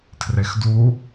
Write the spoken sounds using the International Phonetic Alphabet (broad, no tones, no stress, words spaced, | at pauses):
tʰrexdu